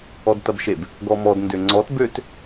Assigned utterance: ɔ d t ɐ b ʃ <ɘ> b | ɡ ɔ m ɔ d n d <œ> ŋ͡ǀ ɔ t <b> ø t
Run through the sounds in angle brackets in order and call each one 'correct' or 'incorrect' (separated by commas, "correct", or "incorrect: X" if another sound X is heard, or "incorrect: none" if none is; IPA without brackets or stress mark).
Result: incorrect: e, incorrect: ø, correct